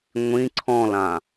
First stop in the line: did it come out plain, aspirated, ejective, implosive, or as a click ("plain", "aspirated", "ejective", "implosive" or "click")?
click